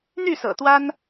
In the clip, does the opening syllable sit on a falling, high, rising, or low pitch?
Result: falling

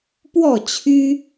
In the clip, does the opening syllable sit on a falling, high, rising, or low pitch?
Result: falling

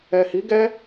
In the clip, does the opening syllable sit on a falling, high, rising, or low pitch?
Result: low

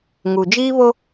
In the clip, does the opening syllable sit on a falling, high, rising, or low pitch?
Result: low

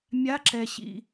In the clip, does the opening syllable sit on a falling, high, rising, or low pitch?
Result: rising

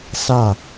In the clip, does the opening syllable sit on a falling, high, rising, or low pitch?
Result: falling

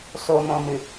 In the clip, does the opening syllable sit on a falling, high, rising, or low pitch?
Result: low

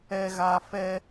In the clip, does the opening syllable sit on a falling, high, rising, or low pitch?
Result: low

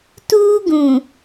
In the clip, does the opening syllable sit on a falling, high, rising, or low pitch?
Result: high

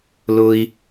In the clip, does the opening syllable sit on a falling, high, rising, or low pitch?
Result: high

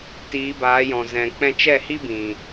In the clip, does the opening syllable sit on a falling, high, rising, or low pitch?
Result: rising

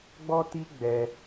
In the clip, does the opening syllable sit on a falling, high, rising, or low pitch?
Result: high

